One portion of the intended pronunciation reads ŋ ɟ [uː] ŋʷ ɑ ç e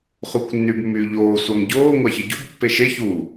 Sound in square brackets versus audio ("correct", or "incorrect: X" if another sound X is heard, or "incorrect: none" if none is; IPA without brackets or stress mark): incorrect: oː